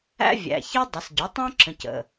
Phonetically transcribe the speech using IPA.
æ̰˥vʲæ̰˩˧˩ çɘ˥ dˤə˩˧sɟo˩˥ tˤõ˥ǁə̃˩˧˩c ə̰˩˧˩

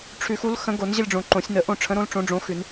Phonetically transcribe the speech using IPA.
ʈ͡ʂʰʉ˨˩˦xu˨˥lxə̃˨˥ɡo˨˩˦n ʑə˦˨lʲɖ͡ʐõ˨˩˦ ǃõ˨˩˦sʲnə˨˩˦ ʔõ˦˨ʈ͡ʂʰə̃˨˥ɾõ˨˥l ʈ͡ʂõ˨˥ɖ͡ʐõ˨˥ xʉ˨˩˦n

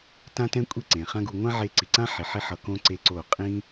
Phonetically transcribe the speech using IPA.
tã˦tɛ̃˦ kʷʼi˦˨ǀẽ˨χã˦ɡu˧ ŋʷã˦ʕe˧ ǀi˨ǀã˦ħi˨ħi˧ ħʌ˧kõ˦ ǀe˦ǀo˦˨ qʼĩ˦

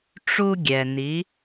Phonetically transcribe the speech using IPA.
ʈ͡ʂu˧ ɡʲɛ˩ni˩˧

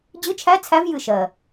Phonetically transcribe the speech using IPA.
d͡ʑɨ˧˥˧t͡ʃʰæ˧˥˧t͡sʰæ˧˥v jɨ˦˨ʃɜ˨˩

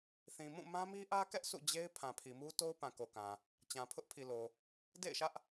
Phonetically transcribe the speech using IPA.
θĩ˨mũ˦˨ mã˦mi˦ʔä˦kɛ˦ʔ sʰṵ˦˨d͡ʑe˦ɪ̯ pʰã˨pʰi˨mu˦to˦ʊ̯ pã˨ko˨kã˨ | t͡ɕã˨pʰʊ˦ʔ pʰi˨lo˨ | dḛ˦˨ɪ̯ʃä˦ʔ

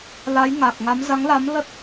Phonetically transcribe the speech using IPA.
la˨˦jŋa˨˩k̚ŋa˨˦m za˨˦ŋla˨˦mlə˦˥t̚

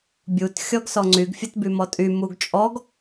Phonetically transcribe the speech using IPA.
bʲut xʲɔɡsɔŋ͡ǀyɡ fʲətbymɔtʼy muɡt͡ʃʼɔɡ

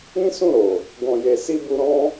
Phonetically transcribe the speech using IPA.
ĩ˦sũ˦˨ɾo˨ | ɡɔ̃˨je˨si˧ bu˧ɾɔ̃˦

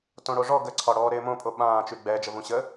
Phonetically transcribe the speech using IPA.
tõɽoʐɔ ɡəǀʰɒ ɽɔːɾɪːmõpʼo ɓãːt͡ʃy ɡ͡bɛːd͡ʒə vũɕə

